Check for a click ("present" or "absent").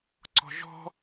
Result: present